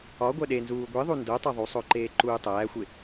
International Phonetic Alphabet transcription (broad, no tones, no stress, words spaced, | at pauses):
ɒɡʷæɗenzuː ɡʷiðˤu ndotˤæ ðˤusˤoǃeː ǃuːtˤæːxʷe